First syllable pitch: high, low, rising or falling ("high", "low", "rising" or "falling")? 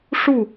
falling